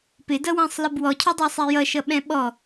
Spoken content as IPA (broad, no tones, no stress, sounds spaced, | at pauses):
p ɪ d ʌ w æ̃ sˤ l i b w ɔ cʰ ɔ dˤ ɑ sˤ ɛ j ʌ ʃ ʌ ɓ ɛ̃ ɓ ɔ